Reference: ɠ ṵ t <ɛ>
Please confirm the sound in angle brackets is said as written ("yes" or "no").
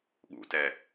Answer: yes